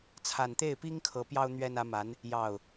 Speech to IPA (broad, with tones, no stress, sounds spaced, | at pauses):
t͡sʰ a˨˩ n t̪ e˥˩ ɪ̯ p i˥ ŋ kʰ ɤ˧˥ p j ɑ˥ ʊ̯ n̪ ɥ ɛ˥ n ä˧˥ m a˧˥ n | j ɑ˥˩ ʊ̯